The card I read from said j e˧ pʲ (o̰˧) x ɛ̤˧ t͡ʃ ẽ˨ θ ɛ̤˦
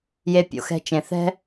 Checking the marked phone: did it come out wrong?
yes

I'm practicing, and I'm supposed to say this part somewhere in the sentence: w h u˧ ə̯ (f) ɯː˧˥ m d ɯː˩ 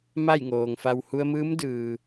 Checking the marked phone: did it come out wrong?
yes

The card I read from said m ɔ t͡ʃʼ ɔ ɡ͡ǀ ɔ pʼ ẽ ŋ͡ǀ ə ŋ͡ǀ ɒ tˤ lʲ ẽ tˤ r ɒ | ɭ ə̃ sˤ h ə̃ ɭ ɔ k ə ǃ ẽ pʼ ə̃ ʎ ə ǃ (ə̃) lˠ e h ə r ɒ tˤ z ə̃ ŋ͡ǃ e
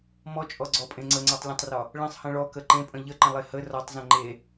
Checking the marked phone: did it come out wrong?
no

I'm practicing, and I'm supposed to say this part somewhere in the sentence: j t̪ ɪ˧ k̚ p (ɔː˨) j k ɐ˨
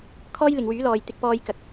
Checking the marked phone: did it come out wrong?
yes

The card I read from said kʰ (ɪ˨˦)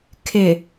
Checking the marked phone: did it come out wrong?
yes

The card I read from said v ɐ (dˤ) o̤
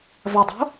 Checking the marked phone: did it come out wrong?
no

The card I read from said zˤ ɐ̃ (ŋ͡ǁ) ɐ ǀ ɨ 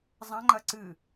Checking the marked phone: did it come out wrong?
yes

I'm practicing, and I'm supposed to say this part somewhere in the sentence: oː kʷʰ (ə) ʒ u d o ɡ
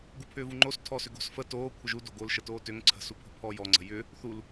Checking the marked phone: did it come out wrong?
no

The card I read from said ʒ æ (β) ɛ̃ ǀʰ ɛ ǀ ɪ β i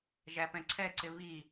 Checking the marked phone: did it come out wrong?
yes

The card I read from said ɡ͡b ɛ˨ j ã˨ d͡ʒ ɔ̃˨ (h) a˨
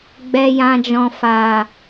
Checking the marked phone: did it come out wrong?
yes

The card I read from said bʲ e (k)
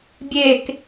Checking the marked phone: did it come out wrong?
no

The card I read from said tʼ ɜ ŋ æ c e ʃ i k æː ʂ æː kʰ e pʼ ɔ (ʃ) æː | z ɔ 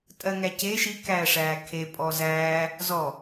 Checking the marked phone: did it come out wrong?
yes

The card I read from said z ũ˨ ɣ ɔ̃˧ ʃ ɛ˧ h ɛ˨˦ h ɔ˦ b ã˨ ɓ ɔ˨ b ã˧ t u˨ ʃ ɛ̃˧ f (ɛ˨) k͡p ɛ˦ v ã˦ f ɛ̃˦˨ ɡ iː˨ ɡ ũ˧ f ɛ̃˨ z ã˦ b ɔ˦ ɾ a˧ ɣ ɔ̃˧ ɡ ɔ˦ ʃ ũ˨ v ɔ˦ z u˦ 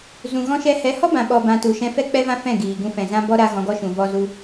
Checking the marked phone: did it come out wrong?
yes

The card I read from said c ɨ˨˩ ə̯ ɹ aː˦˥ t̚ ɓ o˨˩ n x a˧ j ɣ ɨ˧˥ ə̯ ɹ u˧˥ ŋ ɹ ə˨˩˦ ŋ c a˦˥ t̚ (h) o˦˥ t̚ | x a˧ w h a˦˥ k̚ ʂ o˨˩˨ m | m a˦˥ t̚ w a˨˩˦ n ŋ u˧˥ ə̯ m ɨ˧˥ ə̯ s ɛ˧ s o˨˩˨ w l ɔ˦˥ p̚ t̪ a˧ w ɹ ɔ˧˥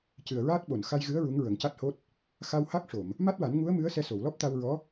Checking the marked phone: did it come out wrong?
no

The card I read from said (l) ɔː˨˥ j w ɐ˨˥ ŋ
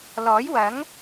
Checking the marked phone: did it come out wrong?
no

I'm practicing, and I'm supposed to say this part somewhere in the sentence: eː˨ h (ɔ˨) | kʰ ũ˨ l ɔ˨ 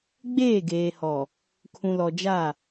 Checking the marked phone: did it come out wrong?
no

